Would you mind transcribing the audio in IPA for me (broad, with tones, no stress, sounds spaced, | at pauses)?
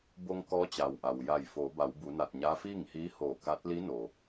b o˧ ŋ k ɔː˧˥ t͡ɕ a˩ w ʔ a˩ w j a˧˩ j f oː˩˧ b a˩˧ w b u˩˧ n a˧˩ t̚ ɲ aː˧˥ f iː˥˨ ŋ h iː˧˥ h oː˧˩ k a˧˥ t̚ l i˧˥ n o˩